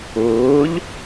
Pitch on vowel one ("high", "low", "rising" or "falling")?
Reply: rising